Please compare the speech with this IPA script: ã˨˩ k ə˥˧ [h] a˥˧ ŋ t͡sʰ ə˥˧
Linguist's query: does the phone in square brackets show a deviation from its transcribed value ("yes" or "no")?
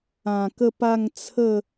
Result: yes